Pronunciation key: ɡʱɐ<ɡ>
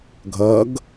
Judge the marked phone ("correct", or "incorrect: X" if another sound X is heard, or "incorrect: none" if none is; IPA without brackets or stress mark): correct